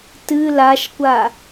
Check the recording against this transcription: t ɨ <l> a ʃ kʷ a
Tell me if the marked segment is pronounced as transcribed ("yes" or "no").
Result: yes